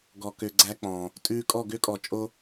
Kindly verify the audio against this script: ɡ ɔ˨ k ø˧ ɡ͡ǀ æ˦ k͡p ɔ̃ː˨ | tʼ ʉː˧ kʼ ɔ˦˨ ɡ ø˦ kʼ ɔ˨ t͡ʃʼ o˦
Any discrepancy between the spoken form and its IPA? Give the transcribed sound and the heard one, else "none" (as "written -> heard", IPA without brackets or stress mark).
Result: none